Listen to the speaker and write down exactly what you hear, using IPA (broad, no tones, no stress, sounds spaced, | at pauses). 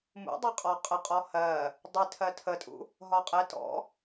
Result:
m ṵ dˤ ɜ qʼ ɔ qʼ ə qʼ ɔ h ɜ | dˤ ɪ tʰ ɜ tʰ ə tʼ ṵ | ɦ ɒ qʼ ɛ t ɔ̰